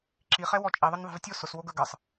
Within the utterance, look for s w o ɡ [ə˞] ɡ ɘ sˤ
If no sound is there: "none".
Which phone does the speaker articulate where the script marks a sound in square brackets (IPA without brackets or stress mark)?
ə˞